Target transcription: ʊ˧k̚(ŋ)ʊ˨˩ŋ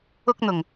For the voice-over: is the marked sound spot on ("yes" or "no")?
no